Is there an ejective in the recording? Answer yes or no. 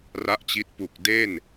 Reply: no